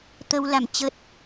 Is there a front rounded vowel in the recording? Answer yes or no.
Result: no